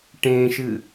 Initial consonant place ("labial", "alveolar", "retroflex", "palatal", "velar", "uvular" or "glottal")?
retroflex